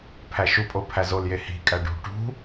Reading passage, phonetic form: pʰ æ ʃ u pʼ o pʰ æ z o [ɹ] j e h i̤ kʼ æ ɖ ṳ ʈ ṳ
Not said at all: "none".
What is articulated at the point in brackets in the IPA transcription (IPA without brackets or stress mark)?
l